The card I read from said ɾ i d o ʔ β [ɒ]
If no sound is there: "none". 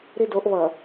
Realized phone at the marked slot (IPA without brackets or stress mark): ʌ